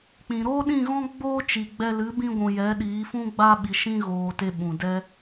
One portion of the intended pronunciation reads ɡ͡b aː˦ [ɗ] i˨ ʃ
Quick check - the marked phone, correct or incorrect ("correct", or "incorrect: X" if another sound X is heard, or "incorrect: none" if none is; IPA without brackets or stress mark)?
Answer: incorrect: ɓ